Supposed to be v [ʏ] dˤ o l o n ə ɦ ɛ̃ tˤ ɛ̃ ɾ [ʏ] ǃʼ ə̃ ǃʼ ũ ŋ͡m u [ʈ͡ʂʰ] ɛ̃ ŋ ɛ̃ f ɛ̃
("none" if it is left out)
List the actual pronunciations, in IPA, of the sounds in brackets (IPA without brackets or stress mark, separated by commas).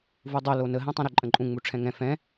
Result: u, ʏ, ʈ͡ʂʰ